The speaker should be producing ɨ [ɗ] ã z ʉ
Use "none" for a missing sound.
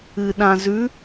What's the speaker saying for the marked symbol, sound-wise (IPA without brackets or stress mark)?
ɗ